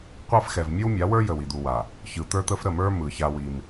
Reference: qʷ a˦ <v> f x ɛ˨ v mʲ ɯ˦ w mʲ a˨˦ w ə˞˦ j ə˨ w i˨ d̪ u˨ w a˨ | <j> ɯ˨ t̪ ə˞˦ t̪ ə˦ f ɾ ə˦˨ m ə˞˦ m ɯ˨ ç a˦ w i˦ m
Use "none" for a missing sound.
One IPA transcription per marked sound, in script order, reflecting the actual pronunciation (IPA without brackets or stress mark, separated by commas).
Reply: none, ç